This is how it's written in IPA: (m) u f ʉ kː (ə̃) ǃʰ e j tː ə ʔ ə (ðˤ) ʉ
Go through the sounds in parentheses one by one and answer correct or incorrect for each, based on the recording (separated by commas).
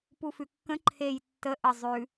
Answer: incorrect, correct, incorrect